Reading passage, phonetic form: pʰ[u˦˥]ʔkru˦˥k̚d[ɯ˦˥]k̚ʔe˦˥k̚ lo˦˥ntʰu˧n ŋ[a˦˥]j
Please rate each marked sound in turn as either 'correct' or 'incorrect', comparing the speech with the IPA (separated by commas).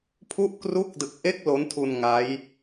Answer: correct, incorrect, correct